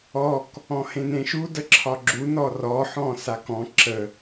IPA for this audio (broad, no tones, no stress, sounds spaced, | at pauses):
ɔ k | ɔ̃ h ẽ n ẽ ʃ u d ə ǁʰ ɒ ɡ͡ǁ u n ɔ r ɔ ħ ɔ̃ s a k ɔ̃ ǁ ə